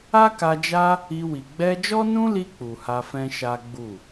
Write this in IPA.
a˦ k a˧ d͡ʒ a˦ | i˧ w i˨ ɡ͡b ɛ˧ d͡ʒ ɔ˦ n ũ˦ l i˧ k͡p u˨ h a˧ f ɛ̃˦ ʃ a˦ ɡ͡b u˦˨

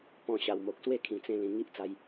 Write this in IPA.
p ɔ̃˧ ɕ a˨˩ w m o˨ k̚ s w e˦ kʰ ĩ˨˩ t͡s ẽ˧ l ĩ˨˩ ŋ i˦ ʔ t͡s a˧ j

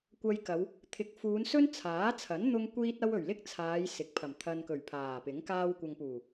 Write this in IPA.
kʷ ɐ˧ j k ɐ˨˧ w | t̪ʰ ɪ˨˥ k̚ f uː˨˧ n s ɵ˥ n t͡sʰ aː˨˥ t͡sʰ ɐ˨˥ n n̪ ʊ˥ ŋ kʷ iː˥ t̚ ɐ˥ w ɵ˨˩ ɥ l ɪ˥ k̚ t͡sʰ aː˨˧ j s ɪ˨˥ k̚ pʰ ɐ˨˩ m t̪ʰ ɐ˧ n k ɵ˨˩ ɥ pʰ aː˨˩ p ɪ˨˥ ŋ k aː˧ w kʷ ɐ˨ ŋ p uː˨˩

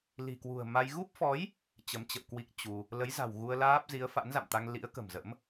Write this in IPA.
l i̤˨˩ k w ṳ˨˩ ə̯ m a˧ j ɣ u˦˥ p̚ f ɔ˨˦ j | t͡ɕ ə˨˦ m t͡ɕ ə̰˧˨ w k w i˦˥ k̚ t͡ɕ u˧ | l ə˨˦ j z a̤˨˩ w ɣ u˧ ə̯ l aː˦˥ p̚ z i˨˦ ə̯ f a̰˧˥ n z a̰˧˨ m t̪ a˧ ŋ l ḭ˧˥ ə̯ k ə̤˨˩ m z ə̰˧˥ m

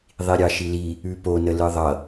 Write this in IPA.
ðˤ i ɾʲ ɑ ʃ i l i | ʉ p o n ə l ɯ ðˤ ʌ

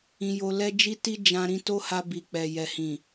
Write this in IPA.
ĩ˧ j o˧ l ɛ˦ d͡ʒ i˦ t i˦ d͡ʒ ã˧ ɾ ĩ˧ t o˦ h a˧ b i˨ k͡p ɛ˨ j ɛ˨ h ĩ˨

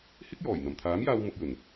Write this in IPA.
h ɪ˥ k̚ j ɔː˨˩ j n̪ ɐ˨˩ m t̪ʰ aː˨˥ m j aː˧ w m ʊ˨ k̚ j ɵ˨˩ n

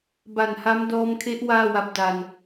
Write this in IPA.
b a˨˩ n h a˦˥ m d ɔː˧ m kʰ e˦˥ ʔ w aː˥˩ w a˦˥ p̚ d a˧ n

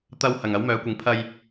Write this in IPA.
t̪ ɐ˧ w h ɐ˨ ŋ ɐ˨˧ w m œː˨˧ kʷ ɪ˨˧ ŋ pʰ ɐ˧ j

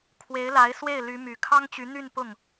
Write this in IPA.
kʰ w e˧˥ ɪ̯ l a˧˥ ɪ̯ s w e˥˩ ɪ̯ l y˧˥ m y˨˩ kʰ ɑ˥ ŋ t͡ɕ y˧˥ n̪ y˥˧ n p ʊ˥˩ ŋ

